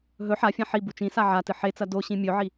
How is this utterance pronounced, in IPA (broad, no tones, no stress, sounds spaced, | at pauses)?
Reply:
ɦ ɵ ħ a fʲ ã ħ i b u t͡ʃ ĩ s a ʕ a t ɨ ħ e t͡s ɐ d o ɕ ĩ mʲ ɵ ʕ i